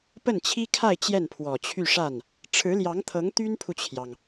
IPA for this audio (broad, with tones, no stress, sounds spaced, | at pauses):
p ə˥˩ n t͡ɕʰ i˥ kʰ a˥˧ ɪ̯ t͡ɕ j ɛ˥˩ n pʰ w ɔ˨˩ t͡ɕʰ y˥˧ ʂ a˥˩ n | ʈ͡ʂʰ ɻ̩˧˥ l j ɑ˧˥ ŋ t̪ʰ ɤ˧˥ ŋ t̪ y˥ n pʰ u˨ t͡ɕʰ j ɑ˩ ŋ